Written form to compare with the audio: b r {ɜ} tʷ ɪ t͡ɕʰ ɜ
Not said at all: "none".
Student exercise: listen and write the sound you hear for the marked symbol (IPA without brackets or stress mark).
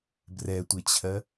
ɛ